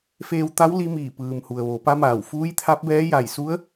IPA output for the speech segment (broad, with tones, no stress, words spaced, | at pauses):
feː˧wt̪a˧˥w li˧˥miː˧˩pɯː˩m hu˩ə̯ʋo˩˧pa˧˥maː˧˩w fuː˧˥jt̪ʰa˧˥p̚bɛː˧˥ ja˧˩jsu˧˥ə̯